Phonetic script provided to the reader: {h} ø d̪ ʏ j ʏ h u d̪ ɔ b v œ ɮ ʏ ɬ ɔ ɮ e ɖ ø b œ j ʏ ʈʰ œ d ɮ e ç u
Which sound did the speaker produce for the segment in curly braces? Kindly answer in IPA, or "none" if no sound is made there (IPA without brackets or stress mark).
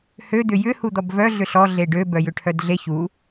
h